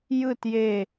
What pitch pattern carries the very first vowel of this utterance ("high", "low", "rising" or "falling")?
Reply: falling